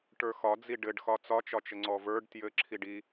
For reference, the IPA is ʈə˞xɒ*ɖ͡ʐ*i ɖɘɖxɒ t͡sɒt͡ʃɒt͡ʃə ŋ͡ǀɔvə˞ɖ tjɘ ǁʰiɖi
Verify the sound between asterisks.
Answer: incorrect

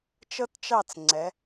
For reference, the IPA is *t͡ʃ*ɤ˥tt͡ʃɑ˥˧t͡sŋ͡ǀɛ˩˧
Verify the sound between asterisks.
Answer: correct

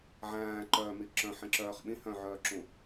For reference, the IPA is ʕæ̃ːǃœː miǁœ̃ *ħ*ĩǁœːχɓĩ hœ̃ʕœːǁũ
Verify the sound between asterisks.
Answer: correct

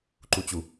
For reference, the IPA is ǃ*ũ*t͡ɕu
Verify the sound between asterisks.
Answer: incorrect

